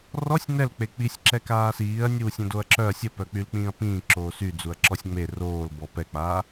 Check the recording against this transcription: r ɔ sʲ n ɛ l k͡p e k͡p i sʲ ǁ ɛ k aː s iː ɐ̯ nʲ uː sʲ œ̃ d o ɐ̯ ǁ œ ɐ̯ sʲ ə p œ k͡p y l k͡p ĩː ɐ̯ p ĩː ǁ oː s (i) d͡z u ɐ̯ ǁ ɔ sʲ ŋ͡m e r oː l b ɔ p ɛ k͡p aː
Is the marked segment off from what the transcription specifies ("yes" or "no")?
yes